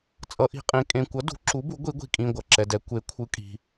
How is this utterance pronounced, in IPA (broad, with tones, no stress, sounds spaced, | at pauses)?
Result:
t͡sʼ ʌ˨˥ ʔ i̤˨˥ qʼ ẽ˨˥ kʼ ẽ˨ kʷ ʌ˨˥ d ṳ˨˥ ǁ u˨˥ b u˨˥ ɡʷ i˨˥ ɡʷ i̤˨ kʼ ĩ˨ ɡʷ ʌ˨ ǁ ɛ˨ d ɛ˨ kʷ e˨˥ kʷʰ ɯ˨˥ kʼ i̤˨